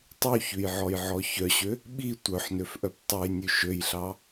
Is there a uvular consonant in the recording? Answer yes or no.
no